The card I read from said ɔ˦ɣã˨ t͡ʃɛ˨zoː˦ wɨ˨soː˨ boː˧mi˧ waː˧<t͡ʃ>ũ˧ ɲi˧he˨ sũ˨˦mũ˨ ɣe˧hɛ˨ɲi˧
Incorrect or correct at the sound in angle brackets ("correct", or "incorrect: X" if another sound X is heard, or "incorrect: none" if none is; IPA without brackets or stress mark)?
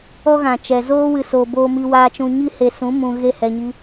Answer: correct